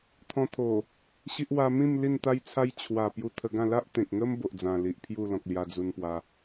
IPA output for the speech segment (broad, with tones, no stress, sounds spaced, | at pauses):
t̪ʰ ɔ̃˧ t̪ʰ o˨˩ | ɕ i˦ ʔ w a˧ m ĩ˥˧ m l i˥˧ n t̪ a˦ j t͡sʰ a˦ j t͡ɕʰ w a˨˩ p j u˧ t̪ʰ ə˧ ɡ ã˥˧ l a˦ ʔ t̪ ẽ˨ k̚ ŋ ə˦ m b o˨ ʔ d͡z ã˨˩ l i˨ ʔ pʰ j u˥˧ l ɔ̃˨ k̚ l j a˧ d͡z u˧ n p w a˧